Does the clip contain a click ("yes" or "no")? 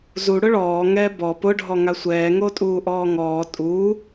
no